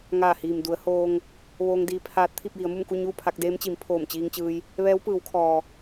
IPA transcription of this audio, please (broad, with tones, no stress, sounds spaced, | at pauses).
ŋ aː˧˩ h iː˩ m d u˩˧ ə̯ h oː˧ ŋ | ʋ oː˧ ŋ d iː˧ pʰ aː˧˥ t̚ t̪ʰ i˥˨ p̚ j i˩˧ ə̯ m u˥˨ m k u˥˨ ɲ uː˥˨ pʰ a˧ k̚ d eː˧˥ m t͡ɕ i˩˧ m pʰ oː˧˩ m t͡ɕ iː˧ ŋ t͡ɕ ɯː˧ j | ʋ ɛː˧˥ w p ɯː˩˧ w kʰ ɔː˩